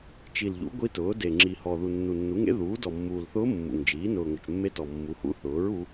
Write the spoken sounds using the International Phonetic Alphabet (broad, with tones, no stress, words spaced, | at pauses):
t͡ʃi˨˩lʎṵ˩˥ ɡʷi˧˥tʊː˩˥ de˨˩ŋ͡ǁi˨˩hɔ˨˩ ðu˨˩nːu˨˩nːu˩˥ŋḛ˧˥ ðuː˩˥dɔ˨˩mːuː˨˩lθʊː˧˥ mːṵ˨˩ŋd͡ʒiː˩˥ nʊː˨˩ŋʊ˨˩t͡ʃmːe˧˥ tɔ˨˩mːu˩˥hṵ˧˥ θʊː˩˥ɹ u˧˥